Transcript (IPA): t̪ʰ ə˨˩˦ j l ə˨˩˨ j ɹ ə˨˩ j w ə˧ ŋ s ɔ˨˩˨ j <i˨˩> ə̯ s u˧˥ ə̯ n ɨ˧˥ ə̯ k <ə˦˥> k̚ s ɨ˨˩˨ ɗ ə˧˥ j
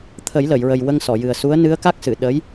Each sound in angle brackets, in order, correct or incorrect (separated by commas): incorrect, incorrect